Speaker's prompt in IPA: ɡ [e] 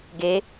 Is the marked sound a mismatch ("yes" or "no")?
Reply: no